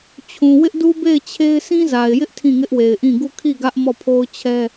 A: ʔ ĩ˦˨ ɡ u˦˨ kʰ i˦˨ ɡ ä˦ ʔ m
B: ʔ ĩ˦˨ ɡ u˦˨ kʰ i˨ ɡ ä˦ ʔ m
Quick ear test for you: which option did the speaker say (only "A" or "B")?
A